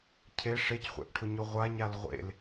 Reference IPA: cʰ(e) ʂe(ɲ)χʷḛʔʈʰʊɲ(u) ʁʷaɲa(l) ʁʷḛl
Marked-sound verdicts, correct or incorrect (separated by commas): correct, incorrect, incorrect, correct